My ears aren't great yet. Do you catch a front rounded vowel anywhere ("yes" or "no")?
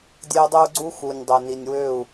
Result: yes